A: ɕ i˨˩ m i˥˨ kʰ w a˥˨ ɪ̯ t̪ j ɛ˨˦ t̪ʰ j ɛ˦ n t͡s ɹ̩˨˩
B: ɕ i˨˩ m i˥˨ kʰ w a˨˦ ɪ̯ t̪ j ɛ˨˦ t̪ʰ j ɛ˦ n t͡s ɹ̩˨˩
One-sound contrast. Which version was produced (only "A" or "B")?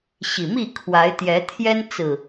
B